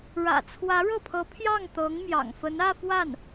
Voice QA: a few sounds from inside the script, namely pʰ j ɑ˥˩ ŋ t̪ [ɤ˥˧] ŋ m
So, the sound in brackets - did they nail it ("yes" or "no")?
no